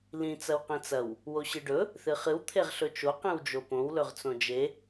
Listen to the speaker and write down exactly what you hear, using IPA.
l ĩ t͡s ɐ w q ĩ t͡s ɐ w | w o ɕ ɨ ɖ ɵ | θ ɨ χ ɨ w t̪ʰ e ʁ ɬ ɵ t͡ʃ o q ĩ w d͡ʒ o p õ w l ɵ ʁ t͡s õ d͡ʒ e

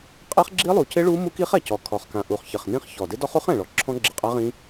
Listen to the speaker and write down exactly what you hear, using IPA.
qʼ ɛ˦˥ χ ɡ͡ǁ i˦˥ lˠ u˨˩ c ɪ˦˥ ɭ u˦˥ m u˦˥ k i˦˥ χ ɛ˨˩ c ɔ˨˩ kʰ ɔ˨˩ χ k ã˨˩ ʔ u˨˩ χ ç ɪ˨˩ χ n ĩ˦˥ χ ç ɔ˨˩ d ɪ˦˥ d ɔ˦˥ χ u˦˥ χ ɛ̃˨˩ ɭ ɔ˨˩ ǁʰ ɔ̃˦˥ ɡ͡ǁ ɪ˨˩ qʼ a˦˥ ʁ ĩ˦˥

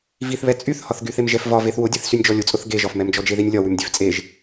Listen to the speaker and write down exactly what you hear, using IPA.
v i θ β ɛ t͡sʼ y θ h ɒ θ ɡ y θ e m ʒ ɛ f v ɒ v e θ w ʊ dʲ e θ s y nʲ d͡ʒ ɔ lʲ ʊ t͡sʼ ʊ θ ɡ e ʒ ɒ f m ɛ m d͡ʒ ɔ d͡ʒ e ð i nʲ lʲ ɒ w y m dʲ e f t͡sʼ e ʒ

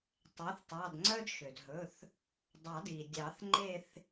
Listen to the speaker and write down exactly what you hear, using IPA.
tˤ æ˩˥ θ tˤ ɑ˩˧˩ d ŋ͡ǀ œ˦ d ʃ ø˩ d ɦ ɵ˩˧˩ θ | dˤ ɑ˨˩˦ d i˩ dʲ ɑ˨˩˦ θ ŋ͡ǃ e˦˨ θ

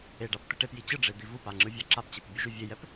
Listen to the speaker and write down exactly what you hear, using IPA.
e ɖ a p t̪ ɛ ʈ e p j i t͡ɕ ɯ ɖ͡ʐ e d̪ i v u p a ŋ͡ǁ ɯ vʲ a ǁ a p t͡ɕ e p bʲ u ʒ u vʲ e j ɛ p

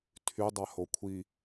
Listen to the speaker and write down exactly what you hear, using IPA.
tʰ y dˤ a h o kʷʰ i

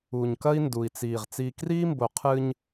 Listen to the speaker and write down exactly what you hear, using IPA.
u˨ ɲ k ɐ˦ i̯ n d u˨ i̯ t͡s iː˨ ʁ t͡s iː˨ k r iː˦ m b o˨ qʰ ɨ˦ ɲ

